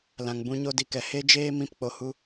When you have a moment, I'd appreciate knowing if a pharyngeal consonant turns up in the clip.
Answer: no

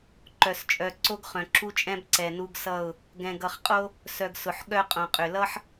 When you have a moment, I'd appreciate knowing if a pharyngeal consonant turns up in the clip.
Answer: yes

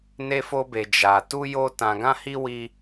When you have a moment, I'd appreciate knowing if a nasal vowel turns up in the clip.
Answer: yes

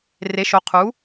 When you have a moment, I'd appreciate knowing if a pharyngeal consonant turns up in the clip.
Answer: no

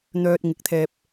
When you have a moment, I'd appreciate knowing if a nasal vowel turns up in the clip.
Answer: no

